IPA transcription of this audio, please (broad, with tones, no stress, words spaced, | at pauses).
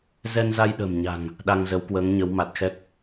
zɛ˧nza˧jɗə̤ː˨˩mɲa̤˨˩ŋ | ɗa˧ŋzə˨˦wkwəː˨˦ŋɲə˨˦w ma˨˩t̚xɛ˦˥k̚